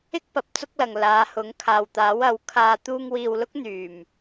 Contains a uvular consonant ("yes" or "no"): no